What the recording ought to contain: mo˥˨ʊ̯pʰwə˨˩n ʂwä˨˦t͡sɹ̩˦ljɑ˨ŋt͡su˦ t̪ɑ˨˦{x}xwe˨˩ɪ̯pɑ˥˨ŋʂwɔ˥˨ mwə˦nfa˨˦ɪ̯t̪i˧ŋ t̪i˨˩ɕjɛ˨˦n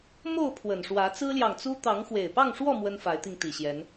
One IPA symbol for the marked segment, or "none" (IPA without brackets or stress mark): ŋ